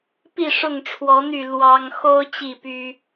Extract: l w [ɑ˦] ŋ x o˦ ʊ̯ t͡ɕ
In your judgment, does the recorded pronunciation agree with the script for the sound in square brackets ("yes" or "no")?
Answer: yes